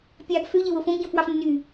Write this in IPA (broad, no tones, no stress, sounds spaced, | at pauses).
pʲ ɑː ɡ f ø ʎ e w o f õ ɡ ɟ õ f w ɑ f nː y